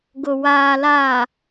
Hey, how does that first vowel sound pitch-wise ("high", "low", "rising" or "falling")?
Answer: low